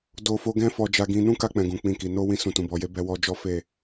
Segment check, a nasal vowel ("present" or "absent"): present